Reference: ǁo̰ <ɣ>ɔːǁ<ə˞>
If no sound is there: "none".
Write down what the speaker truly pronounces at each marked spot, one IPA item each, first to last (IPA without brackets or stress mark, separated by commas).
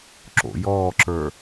j, ə˞